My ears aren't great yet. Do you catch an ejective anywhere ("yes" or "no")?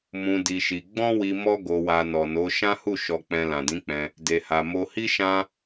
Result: no